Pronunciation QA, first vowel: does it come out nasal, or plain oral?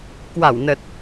oral